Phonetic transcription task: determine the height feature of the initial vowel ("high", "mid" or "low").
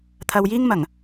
low